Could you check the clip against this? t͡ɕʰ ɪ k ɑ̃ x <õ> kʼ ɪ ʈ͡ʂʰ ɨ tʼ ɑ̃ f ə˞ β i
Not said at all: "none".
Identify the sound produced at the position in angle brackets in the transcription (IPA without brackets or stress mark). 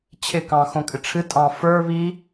õ